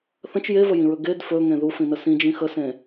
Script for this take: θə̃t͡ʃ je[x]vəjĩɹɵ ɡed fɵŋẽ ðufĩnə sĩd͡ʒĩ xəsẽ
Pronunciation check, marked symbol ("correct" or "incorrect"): incorrect